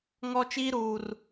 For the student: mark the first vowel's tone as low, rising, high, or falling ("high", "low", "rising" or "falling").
high